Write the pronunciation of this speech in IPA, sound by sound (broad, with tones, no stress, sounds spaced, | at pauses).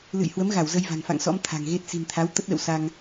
l ɨ̰˧˨ j h w ə˨˦ m ɣ a˧˩ w z ə˧ j v a̤˨˩ ŋ f a̰˧˨ ŋ s ɔ̰˧˥ m t̪ʰ a̤˨˩ ŋ ɣ e˦˥ t̚ s i̤˨˩ n t̪ʰ a˨˦ w t̪ ə˦˥ t̚ ɗ ə̰˧˨ w s a˧ ŋ